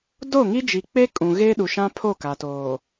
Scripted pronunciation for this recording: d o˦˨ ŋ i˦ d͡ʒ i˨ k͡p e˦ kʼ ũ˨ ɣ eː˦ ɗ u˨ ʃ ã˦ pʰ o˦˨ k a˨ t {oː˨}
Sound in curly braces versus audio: correct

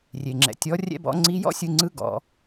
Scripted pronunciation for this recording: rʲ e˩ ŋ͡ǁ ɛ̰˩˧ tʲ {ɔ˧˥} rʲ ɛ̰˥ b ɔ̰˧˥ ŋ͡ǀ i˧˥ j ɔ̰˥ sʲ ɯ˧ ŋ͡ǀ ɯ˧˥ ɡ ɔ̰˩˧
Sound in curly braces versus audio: correct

